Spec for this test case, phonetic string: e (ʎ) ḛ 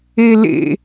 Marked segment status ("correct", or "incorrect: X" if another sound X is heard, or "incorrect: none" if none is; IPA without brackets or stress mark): incorrect: l